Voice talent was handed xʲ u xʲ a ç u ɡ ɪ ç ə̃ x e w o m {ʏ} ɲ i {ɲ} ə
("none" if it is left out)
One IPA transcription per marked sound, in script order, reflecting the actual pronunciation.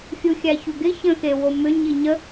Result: ʏ, ɲ

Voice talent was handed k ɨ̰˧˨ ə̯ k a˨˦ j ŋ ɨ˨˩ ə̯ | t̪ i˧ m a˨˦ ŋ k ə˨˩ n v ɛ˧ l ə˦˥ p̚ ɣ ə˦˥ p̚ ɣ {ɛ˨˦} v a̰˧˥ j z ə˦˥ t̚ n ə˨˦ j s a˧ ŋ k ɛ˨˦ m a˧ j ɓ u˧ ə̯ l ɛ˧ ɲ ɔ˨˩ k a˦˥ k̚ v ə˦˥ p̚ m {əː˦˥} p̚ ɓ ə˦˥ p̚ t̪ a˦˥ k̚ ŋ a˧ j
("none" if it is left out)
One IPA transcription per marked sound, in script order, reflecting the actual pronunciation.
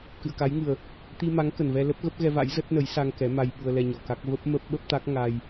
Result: ɛ˧, əː˦˥

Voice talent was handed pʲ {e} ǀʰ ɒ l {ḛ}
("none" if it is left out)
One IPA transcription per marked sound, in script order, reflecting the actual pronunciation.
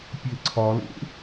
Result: e, ḛ

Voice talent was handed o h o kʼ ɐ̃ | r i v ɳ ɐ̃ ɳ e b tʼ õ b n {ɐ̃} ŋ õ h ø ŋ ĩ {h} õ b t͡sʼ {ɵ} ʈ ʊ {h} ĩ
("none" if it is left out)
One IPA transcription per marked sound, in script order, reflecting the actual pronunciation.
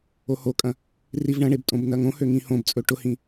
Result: ɐ, h, ɵ, h

